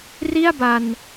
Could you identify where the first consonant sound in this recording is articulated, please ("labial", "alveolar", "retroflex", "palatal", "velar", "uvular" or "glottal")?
alveolar